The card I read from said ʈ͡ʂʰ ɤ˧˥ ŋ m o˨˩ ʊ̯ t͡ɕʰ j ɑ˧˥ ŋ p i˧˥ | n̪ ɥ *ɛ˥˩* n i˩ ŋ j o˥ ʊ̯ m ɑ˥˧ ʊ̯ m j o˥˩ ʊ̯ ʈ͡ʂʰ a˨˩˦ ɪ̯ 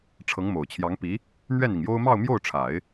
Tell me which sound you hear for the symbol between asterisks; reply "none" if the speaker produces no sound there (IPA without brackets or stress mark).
ɛ˥˩